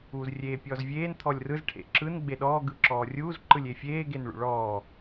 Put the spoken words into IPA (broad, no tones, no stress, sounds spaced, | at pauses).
uː z rʲ eː pʲ ɔː z vʲ eː n t̪ʰ ɔ lʲ r ɯ z ʈʰ ḛ ǁ ɯ n ɡ͡b e ɗ ɔː ɡ ɯ ǁ ɔː rʲ uː z ǃ ɯ lʲ e fʲ eː ɡ e n ɭ ṵ ɭ ɔː